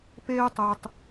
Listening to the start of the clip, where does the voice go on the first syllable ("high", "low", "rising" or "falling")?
high